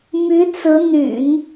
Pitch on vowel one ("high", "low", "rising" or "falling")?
rising